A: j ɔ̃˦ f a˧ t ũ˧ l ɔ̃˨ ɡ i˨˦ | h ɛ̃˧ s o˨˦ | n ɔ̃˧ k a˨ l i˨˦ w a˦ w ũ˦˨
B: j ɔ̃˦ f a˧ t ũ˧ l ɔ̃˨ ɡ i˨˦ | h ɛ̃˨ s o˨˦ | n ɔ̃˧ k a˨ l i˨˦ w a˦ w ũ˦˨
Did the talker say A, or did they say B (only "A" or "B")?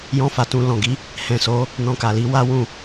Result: B